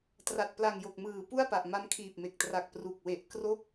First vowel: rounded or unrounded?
unrounded